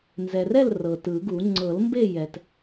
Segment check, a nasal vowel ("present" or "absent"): absent